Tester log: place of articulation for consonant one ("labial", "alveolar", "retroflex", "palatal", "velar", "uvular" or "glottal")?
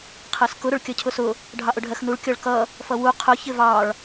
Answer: uvular